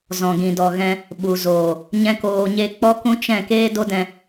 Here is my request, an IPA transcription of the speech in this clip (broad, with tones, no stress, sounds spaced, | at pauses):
z ɔ̃˨ ɡ ĩ˨ d ɔ˨ ɣ ɛ̃˧ | ɓ u˨ z oː˨ | ɲ ɛ̃˦ k oː˧ ɲ e˦ k͡p ɔ˦ k ũ˦ t͡ʃ ɛ̃˦˨ k eː˦ d o˦ d ɛ̃˧